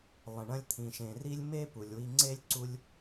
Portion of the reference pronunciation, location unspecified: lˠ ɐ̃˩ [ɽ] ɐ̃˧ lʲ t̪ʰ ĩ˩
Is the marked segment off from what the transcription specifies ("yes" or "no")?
yes